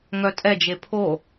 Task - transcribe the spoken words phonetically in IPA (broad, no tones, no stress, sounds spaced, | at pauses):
ŋ œ tʼ ɛ d͡ʒ e pʰ o